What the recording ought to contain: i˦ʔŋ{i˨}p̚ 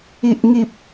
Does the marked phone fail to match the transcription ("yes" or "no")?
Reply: yes